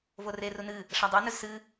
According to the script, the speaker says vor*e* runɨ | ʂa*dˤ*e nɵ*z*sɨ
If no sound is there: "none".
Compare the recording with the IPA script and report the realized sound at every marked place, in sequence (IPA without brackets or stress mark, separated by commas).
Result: e, dˤ, z